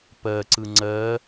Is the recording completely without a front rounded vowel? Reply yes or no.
yes